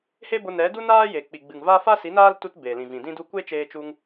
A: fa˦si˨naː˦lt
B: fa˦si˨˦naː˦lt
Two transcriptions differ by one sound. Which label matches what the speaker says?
B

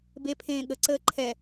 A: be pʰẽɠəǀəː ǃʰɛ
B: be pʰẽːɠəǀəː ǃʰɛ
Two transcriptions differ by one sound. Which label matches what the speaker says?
B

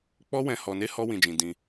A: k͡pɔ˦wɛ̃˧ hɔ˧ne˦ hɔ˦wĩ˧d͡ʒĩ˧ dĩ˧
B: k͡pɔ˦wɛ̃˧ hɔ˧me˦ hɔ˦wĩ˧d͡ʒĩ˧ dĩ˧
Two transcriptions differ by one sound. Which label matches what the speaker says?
A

